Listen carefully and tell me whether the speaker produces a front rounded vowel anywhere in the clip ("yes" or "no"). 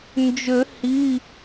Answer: yes